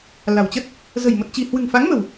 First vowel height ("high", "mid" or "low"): low